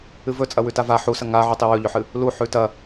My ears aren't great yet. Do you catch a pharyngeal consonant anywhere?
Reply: yes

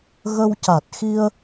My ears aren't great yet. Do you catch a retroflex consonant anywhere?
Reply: no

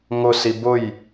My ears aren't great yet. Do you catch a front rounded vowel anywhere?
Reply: no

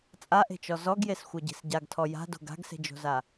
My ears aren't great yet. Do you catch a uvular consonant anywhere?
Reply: no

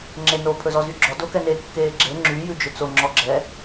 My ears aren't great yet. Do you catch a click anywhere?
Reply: yes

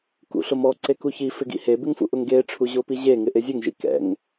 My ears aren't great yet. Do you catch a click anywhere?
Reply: yes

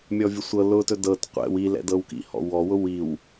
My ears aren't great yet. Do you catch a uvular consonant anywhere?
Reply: yes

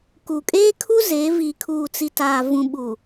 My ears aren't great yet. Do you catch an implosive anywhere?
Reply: yes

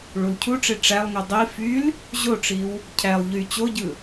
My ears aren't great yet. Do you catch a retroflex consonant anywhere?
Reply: yes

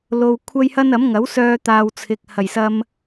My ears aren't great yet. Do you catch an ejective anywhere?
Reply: no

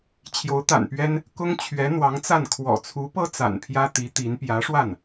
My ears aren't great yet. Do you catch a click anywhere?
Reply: no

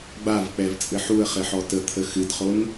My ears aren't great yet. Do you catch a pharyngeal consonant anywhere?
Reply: yes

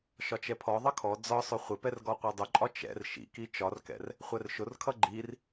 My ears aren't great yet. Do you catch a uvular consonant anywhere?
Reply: yes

